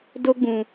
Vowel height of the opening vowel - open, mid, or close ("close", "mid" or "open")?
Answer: mid